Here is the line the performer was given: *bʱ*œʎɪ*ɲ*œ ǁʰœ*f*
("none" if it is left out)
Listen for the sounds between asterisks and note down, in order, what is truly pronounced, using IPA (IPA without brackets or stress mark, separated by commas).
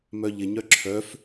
m, ɲ, f